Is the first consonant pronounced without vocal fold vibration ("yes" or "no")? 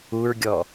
no